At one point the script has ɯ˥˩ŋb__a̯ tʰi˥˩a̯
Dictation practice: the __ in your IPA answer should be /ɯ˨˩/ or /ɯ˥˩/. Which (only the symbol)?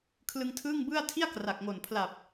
ɯ˥˩